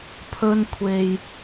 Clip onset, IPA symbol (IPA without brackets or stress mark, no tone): pʰ